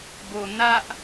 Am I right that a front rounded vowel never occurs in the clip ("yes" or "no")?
yes